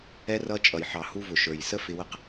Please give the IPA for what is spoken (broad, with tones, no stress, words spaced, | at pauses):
ɛ˧rʌ˧t͡ʃʼʌ˨jħɑ˨ hu˧vʊ˨ʃə˞˨j sə˦fɪ˧wə˦q